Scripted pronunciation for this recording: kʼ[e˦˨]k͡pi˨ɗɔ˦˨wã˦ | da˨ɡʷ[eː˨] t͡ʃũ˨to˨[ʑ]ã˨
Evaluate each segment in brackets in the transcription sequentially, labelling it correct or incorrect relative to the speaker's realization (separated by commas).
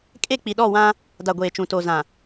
correct, correct, incorrect